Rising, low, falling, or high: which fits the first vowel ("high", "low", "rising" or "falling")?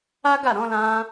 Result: high